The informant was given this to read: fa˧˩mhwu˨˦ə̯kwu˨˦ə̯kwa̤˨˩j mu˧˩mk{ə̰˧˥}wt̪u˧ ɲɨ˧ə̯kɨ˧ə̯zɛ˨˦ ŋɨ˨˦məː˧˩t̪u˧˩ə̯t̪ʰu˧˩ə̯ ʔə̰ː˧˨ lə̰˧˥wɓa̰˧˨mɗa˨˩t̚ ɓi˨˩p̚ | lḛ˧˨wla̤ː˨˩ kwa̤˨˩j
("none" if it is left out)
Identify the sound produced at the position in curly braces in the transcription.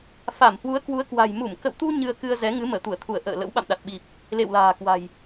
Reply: ə̰˧˨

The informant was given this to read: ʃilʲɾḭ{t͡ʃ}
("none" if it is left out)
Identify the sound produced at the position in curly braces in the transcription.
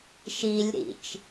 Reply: t͡ʃ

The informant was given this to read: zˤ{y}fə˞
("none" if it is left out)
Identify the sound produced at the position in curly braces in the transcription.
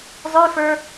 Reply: y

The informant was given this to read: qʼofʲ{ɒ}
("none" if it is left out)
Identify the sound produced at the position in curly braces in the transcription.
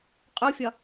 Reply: ɒ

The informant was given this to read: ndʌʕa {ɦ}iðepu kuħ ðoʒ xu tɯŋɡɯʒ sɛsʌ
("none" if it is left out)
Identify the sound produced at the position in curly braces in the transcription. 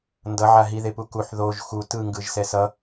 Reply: ɦ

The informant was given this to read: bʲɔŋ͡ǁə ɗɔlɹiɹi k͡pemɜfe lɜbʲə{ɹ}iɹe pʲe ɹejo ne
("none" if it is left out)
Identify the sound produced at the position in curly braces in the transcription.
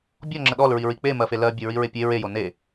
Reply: ɹ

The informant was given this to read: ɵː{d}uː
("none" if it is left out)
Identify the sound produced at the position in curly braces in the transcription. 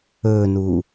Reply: n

